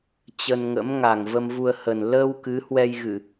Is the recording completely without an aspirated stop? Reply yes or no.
yes